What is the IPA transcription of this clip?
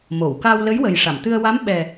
m o˨˩˨ w k a˧ w l ə˧˥ j w ə˨˩ j ʂ a˨˩˨ m t̪ ɨ˧ ə̯ w a˧˥ m ɓ ɛ˨˩

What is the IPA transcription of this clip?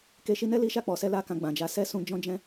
k e˧ ʃ i˧ n ɛ˦ l i˦ ʃ a˦˨ k͡p ɔ˨ s ɛ˧ l a˧ k ã˧ ɡ͡b ã˨ d͡ʒ a˧ s ɛ˦ s ũ˧ d͡ʒ ɔ̃˦ d͡ʒ ɛ̃˦

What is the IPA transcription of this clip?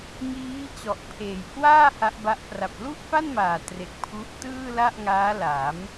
ŋ iː˦˥ t͡ɕ ɔ˨˩ ʔ pʰ eː˨˩ j k w aː˥˩ h a˦˥ ʔ b a˦˥ ʔ p r a˨˩ p̚ l u˥˩ ʔ f a˥˩ n m aː˨˩ t r e˨˩ k̚ pʰ u˦˥ ʔ t ɯː˥˩ l a˥˩ ʔ ŋ aː˦˥ l a˩˦ m

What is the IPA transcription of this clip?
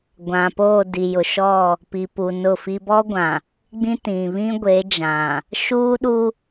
ɡʷ ã˨ p oː˦˨ d i˨ j ʊ˨ ʃ ɔ˦˨ | p i˨ p u˨ n ʊ˦˨ f i˦ b ɔ˦ ɡʷ ã˨ | ɡ͡b ĩ˦ t ĩ˨ β ĩ˦ ɡʷ eː˨˦ d͡ʒ ã˨ | ʃ uː˦ ɗ u˦

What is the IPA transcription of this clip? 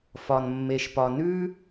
f ɒ˩ n mː e˩ ʃ p ɒ˩ n ʉ˥

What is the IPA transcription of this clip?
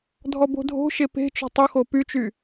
dʱ ɔ b o̤ dʱ o̤ ʃ e p e̤ t͡ʃ ṳ tˤ o x o p y t͡ʃ y

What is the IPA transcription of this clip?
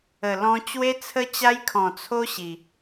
ə˨˩ l ɔ̃˧ t͡ɕ w e˦ t͡sʰ ə˦ t͡ɕ a˦ j kʰ ɔ̃˨˩ t͡sʰ o˦ ɕ i˨˩

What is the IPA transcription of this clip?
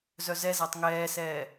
z œ z ɛ z æ tˤ ŋ ɛː s ɛː

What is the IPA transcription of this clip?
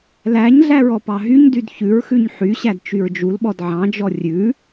l æ ɲ ɮ æ ɹ ɔ p ɑ ɦ y ɲ d y d ç ʉ ɹ x ʉ ɲ ħ y ɕ æ d t͡ʃ y ɹ d͡ʒ u l ɓ ɔ d ʕ ɑ̃ d͡ʒ ɔ rʲ ʉ

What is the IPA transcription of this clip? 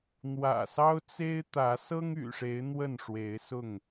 n̪ w ä̰˨˩ s ɑ˦ ʊ̯ t͡s e˦ ɪ̯ t̪ ä˨˦ s ɤ˦ ŋ y̰˨˩ ʂ e˨˦ ɪ̯ n̪ w ə˥˨ n ʂ w e˨˦ ɪ̯ s ʊ˥˨ ŋ

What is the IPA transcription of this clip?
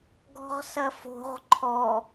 ɡ ɔ̤ ʁ s ɐ f o̤ ʁ ǃʰ ɔ

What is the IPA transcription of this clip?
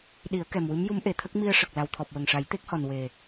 ɗ i˨˩˦ ə̯ k ɛ˨˩ m w ɨ˧˥ m j u˧˥ m ʔ e˨˩˨ t̪ʰ ə˦˥ k̚ m i˧ ə̯ ʂ ə˨˩ k̚ l a˨˩ w t̪ʰ ɔ˨˩ p̚ w ə˨˩ ŋ ʂ a˨˩˦ j t̪ e˦˥ k̚ h ɔ˨˩ n w e˨˩

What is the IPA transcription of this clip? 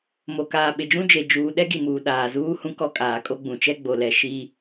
m o˨ k aː˨ ɓ ɪ˨ d͡ʒ ũ˦ d͡ʒ e˨ d͡ʒ uː˨ ɗ ɛ˦ ɡ i˨ m uː˨ ɗ aː˨ z uː˦ h ũ˦ k ɔ˦ kʼ aː˨ kʼ o˦ ɡ͡b ũ˨ t͡ʃ ɛ˦ ɡ͡b o˨ l ɛ˨ ʃ i˦

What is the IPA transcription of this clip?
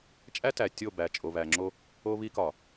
t͡ʃʼ æ˦ t æ˨ tʲ o˦˨ b æ˨ t͡ʃʼ o˨ β æ˨ ŋ͡ǁ o˦ | o˦ β i˦ k ɒ˨

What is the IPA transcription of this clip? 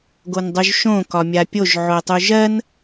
ɡ o n dˤ u ʒ ʃ õ k ɒ mʲ a pʲ o ʒ ʕ o tˤ u ʒ ɜ n

